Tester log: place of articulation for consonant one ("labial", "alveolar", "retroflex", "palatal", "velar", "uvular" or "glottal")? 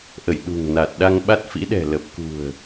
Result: glottal